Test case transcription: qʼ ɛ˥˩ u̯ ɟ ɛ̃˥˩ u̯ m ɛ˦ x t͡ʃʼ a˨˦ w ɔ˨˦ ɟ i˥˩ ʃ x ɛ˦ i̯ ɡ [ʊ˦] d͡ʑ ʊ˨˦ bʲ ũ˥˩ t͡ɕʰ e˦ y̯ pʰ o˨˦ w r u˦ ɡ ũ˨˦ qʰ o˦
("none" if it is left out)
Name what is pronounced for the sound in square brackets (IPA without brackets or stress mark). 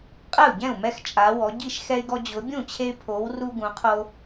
ɔ˦